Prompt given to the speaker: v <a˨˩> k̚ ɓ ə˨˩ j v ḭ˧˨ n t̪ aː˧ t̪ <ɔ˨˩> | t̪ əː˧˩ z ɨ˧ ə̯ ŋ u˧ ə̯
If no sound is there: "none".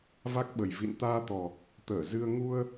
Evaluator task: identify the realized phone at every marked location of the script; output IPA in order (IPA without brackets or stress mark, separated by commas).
a˦˥, ɔ˨˩